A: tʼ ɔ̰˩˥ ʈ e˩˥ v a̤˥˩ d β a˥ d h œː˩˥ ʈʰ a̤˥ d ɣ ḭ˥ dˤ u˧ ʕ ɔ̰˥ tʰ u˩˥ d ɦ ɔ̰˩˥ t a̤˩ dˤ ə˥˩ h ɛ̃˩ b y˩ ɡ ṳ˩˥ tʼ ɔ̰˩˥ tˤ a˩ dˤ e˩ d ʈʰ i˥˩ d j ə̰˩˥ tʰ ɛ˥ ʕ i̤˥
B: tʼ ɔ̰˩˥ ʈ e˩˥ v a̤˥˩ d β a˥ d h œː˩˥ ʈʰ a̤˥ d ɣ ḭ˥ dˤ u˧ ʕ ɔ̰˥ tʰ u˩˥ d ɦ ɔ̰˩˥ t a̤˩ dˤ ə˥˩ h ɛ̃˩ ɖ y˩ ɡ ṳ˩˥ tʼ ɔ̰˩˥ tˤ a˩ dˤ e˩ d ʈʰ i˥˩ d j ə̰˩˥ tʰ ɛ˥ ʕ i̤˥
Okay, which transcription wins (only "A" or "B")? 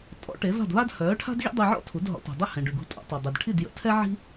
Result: B